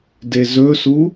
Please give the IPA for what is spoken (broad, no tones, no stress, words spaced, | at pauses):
dezɵsu